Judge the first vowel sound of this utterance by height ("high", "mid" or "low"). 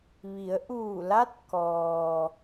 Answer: high